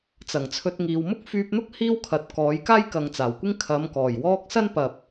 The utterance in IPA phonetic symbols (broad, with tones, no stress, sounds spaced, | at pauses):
t͡s ɐ˨˩ ŋ t͡sʰ ɵ˧ t̚ ŋ iː˨ w m ʊ˥ k̚ f yː˧ p̚ n̪ ʊ˥ k̚ h iː˥ w kʰ ɐ˨ t̚ k ɔː˨˥ j k aː˥ j k ɐ˨ ŋ t͡s aː˨˩ w kʷ ɪ˥ ŋ kʰ ɐ˨˧ m k ɔː˨˩ j w ɔː˥ k̚ s ɐ˥ n p ɐ˨ p̚